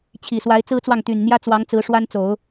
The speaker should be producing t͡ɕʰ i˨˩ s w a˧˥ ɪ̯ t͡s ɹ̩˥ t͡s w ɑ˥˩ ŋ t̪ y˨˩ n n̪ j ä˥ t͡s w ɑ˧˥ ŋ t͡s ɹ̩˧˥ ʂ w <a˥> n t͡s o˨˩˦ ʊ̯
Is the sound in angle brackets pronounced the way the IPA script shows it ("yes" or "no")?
yes